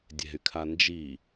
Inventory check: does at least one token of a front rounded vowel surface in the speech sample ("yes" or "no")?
yes